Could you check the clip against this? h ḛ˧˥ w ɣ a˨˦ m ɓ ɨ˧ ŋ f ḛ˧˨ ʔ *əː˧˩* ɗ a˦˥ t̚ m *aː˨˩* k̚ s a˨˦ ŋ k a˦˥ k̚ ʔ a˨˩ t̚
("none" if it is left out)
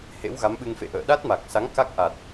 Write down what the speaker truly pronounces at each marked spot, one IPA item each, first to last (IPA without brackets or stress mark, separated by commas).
ə̰ː˧˨, a˨˩